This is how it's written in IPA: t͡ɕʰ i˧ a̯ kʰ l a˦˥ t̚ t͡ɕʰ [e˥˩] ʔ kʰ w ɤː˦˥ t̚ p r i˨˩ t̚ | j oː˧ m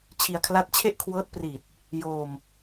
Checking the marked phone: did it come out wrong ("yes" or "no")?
no